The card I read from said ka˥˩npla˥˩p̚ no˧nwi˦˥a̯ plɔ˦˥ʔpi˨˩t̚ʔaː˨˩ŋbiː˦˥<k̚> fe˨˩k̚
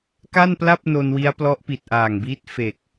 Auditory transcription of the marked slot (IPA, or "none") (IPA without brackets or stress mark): t̚